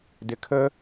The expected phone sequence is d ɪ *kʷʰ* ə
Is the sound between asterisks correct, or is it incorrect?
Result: incorrect